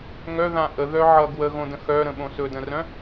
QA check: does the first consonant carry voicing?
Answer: yes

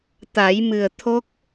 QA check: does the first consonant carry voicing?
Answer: no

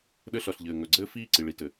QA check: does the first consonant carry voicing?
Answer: yes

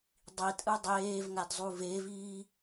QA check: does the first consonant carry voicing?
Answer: yes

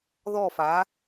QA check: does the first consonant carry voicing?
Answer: yes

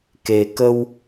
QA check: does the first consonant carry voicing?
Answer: no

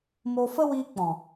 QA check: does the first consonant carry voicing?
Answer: yes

